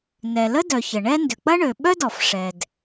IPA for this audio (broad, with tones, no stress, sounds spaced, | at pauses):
n ɛ˩ l ə˥ d œ˩ ç ə˩ ɳ ɛ˥ n d ʏ˩ k͡p ɐ˥ ɳ ø˩ ɓ œ˥ d ɔ˩ f ʂ ɛ˩ d